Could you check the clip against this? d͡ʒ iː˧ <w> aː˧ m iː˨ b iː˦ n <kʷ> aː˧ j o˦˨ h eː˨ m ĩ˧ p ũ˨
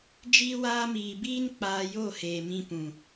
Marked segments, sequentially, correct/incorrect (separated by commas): correct, incorrect